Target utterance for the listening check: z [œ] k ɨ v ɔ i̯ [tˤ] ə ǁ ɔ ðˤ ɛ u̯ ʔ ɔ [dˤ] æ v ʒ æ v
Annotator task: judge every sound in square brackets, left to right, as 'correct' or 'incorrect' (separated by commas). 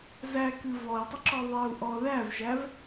incorrect, correct, incorrect